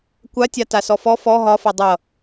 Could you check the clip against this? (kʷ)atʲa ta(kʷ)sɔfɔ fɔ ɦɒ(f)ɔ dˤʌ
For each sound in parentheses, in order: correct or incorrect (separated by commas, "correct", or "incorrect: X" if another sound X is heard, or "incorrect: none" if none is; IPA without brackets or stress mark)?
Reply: correct, incorrect: none, correct